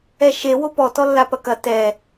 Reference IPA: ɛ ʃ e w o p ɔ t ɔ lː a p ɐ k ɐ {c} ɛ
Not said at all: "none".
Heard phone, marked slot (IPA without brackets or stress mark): t